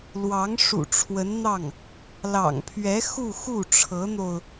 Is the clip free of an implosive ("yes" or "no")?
yes